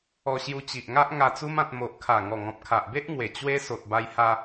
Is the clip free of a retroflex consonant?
yes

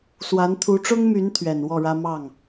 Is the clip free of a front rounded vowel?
no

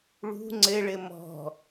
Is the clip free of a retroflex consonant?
no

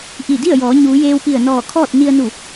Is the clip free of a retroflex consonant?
yes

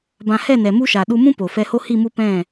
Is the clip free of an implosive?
no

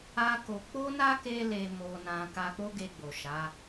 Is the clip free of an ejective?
yes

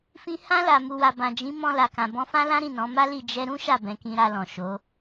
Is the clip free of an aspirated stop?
yes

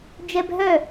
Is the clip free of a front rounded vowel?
no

